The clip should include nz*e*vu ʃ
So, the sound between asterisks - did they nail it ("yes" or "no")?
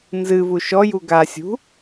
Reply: no